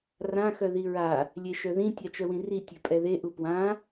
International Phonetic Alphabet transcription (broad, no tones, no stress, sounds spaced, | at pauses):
r ã x œ ð i ɹ a | lʲ e ʃ œ ð ĩ tʲ a t͡ʃ œ w ĩ r i tʲ ø pʼ ɛ ð e ʔ u p w ã